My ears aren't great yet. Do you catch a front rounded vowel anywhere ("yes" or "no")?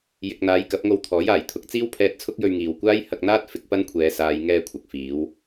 no